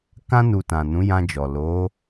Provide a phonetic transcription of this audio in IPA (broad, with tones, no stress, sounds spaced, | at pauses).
k ã˧ n u˨ t ã˨ n ũ˨˦ j ã˧ d͡ʒ ɔ˨ l o˨˦